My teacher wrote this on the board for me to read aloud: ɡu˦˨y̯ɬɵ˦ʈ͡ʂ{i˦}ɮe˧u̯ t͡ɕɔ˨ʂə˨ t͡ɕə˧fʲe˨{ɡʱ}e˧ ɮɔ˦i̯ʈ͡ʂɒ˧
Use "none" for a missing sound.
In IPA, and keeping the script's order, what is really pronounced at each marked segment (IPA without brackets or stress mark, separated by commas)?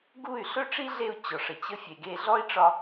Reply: i˦, ɡ